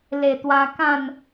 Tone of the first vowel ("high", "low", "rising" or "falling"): low